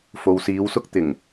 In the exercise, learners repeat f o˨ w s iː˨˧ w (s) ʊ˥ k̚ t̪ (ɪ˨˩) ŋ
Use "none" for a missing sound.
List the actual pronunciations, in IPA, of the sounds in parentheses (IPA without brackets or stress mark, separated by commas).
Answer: s, ɪ˨˩